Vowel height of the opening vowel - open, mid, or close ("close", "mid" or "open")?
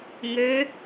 mid